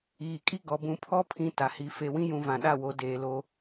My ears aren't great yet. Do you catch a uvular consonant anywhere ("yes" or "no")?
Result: no